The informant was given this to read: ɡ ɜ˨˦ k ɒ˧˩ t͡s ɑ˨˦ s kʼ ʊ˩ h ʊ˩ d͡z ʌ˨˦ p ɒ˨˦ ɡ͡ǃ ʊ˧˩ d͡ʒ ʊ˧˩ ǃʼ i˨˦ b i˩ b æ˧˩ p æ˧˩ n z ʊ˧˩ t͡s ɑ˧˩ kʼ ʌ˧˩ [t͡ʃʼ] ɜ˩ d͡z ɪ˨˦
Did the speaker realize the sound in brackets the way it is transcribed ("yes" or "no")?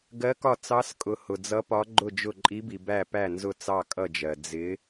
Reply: no